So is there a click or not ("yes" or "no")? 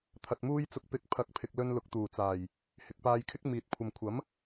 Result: no